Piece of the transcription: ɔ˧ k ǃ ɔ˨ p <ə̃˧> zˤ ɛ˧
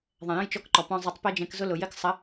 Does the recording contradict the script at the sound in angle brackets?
yes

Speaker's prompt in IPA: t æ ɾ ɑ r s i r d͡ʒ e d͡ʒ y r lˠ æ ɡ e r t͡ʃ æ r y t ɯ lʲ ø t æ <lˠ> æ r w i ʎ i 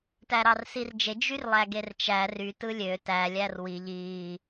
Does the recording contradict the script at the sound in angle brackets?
yes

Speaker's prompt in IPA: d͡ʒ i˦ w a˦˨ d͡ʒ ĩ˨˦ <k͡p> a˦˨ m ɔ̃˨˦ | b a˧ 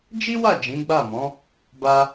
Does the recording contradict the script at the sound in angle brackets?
yes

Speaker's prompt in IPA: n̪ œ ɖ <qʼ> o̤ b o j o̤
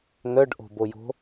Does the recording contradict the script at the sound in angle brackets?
yes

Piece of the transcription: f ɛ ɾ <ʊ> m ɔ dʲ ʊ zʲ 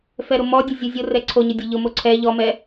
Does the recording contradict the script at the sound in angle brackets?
no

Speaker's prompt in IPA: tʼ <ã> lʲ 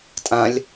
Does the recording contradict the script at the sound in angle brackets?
no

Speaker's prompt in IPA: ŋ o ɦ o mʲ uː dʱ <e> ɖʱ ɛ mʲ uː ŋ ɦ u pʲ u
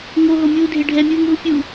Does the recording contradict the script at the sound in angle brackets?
no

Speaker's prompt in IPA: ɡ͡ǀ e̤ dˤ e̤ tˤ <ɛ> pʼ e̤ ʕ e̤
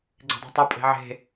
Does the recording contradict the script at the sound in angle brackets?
no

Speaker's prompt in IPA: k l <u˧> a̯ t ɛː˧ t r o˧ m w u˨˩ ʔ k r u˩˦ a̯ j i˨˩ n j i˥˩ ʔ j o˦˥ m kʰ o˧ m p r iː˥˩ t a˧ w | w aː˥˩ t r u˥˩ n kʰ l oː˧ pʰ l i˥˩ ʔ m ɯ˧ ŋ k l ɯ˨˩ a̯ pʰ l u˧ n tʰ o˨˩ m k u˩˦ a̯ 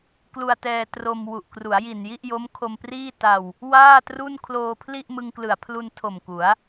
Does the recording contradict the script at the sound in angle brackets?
no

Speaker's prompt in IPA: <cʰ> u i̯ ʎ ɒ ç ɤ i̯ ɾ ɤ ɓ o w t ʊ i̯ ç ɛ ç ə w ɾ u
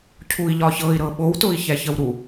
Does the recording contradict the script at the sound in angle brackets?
no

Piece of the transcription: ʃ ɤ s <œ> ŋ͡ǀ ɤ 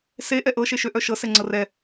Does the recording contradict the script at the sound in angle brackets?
yes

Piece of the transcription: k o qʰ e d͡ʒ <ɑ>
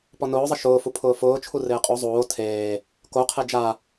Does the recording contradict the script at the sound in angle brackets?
yes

